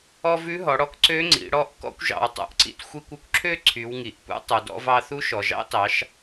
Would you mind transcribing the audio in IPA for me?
ɔ˧ v ʉ˧˥ ɦ ɔ˩˧ ɽ ɔ˧˥ k ǀ ø˧˥ ŋ͡ǀ ḭ˩˧ ɽ ɔ˧˥ ʔ k ɔ̰˧ kʷ ʒ ɑ̰˩ w tˤ ṵ˩˧ ʔ ǀ ḭ˧ t xʷ i˧ kʷ ø˥ kʷ ǁʰ ø˥ ǀʰ y˩˧ w ŋ i˩ ʔ p ṵ˥ tˤ u˩ d ɔ̰˧ v ɑ˧ θ u˧˥ ʃ ɔ˩ ʒ ɑ̰˥ t ɑ˩˧ ʃ

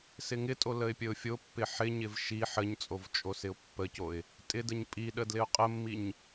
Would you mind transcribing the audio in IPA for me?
s ɪ ŋ ɪ tʼ o l ə ɪ̯ pʲ ə ʊ̯ fʲ o pː ɪ ħ ɪ ɲ ɪ v ʃ i ħ ə ɲ t͡sʼ o v t͡ʃʼ o s ɪ ʊ̯ pː ə c o ɪ̯ | tʼ ɪ d ə ɲ pʼ i ɗ ə d l ɪ ʊ̯ qʼ ə mː i ɲ

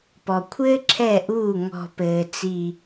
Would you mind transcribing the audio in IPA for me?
p ɔ˩ kʷʰ ɘː˦ ǁʰ ɛ˧˩ ʔ uː˧˩ ŋ ɔ̤˧˩ p ɘː˩ t͡s i˧˩

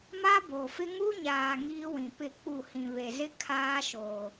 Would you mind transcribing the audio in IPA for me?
m a˦ b oː˨ f ɪ˦ ŋ u˦ ɲ aː˨ ŋ iː˦ w ĩ˨ p ɪ˦˨ k͡p u˦˨ h ĩ˨ β e˨ z ɪ˦ kʰ aː˦ ʃ oː˨

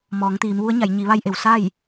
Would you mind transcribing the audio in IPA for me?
m ɔː˩˧ ŋ t̪ iː˩˧ m ʋ u˧˥ ə̯ ɲ a˩˧ j ɲ i˩˧ ʋ a˧ j ʔ e˩ w s a˥˨ j

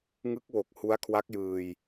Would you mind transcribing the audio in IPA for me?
ŋ ɯ˦˥ k̚ w o˨˩ k̚ h u˦˥ a̯ kʰ w a˦˥ k̚ j ɯː˧ j

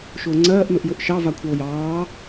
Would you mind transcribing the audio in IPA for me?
ʃ ʊː ŋ͡ǀ ɜː ʔ n ʊ ʔ j ʊ ʔ ʃ ɑ v a kʷʰ ʌ o̯ j ɑː

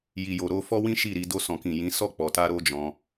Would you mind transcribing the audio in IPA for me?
j i˨ j o˨ ɾ o˧ f ɔ˦ w ĩ˦ ʃ i˦˨ ɾ i˧ d o˧ s ɔ̃˨ k ĩ˨ j ĩ˨˦ s ɔ˦˨ k͡p ɔ˨ t a˧ ɾ o˦ d͡ʒ ɔ̃˧

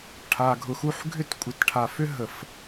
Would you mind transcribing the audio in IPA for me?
ʈʰ a˨ ɡʱ ʊ˨ x u˦˨ ħ ɡʱ ʏ˦ t kʷʼ ɪ˨ t ʈʰ a˨ f ʏ˦ ɦ ə˨˩˦ f

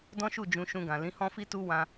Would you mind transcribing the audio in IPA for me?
d ɔ̃˦ ʃ u˦˨ d͡ʒ ũ˧ ʃ ũ˧ ɡ ã˨ l ĩ˨˦ h ɔ̃˦ f i˦ t u˦ w ã˦

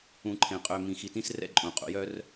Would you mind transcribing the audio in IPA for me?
ũ˨ ǃʰ ẽ˩ qʼ ø˨ m ĩ˩ x i˨ t ĩ˦ s r ɛ̰˥ ǃʼ ũ˩ qʼ ṵ˩ j œ˦ r

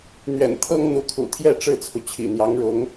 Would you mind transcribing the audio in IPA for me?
n̪ ɥ ɛ̰˨˩ n t̪ʰ ɤ˥ ŋ n̪ u˧˥ kʰ ṵ˨˩ t̪ʰ j ɛ˥˧ ʈ͡ʂ ɻ̩˥˩ t͡sʰ u˩ t͡ɕʰ ḭ˨˩ n̪ j ɑ˧˥ ŋ ɻ ʊ˧˥ ŋ

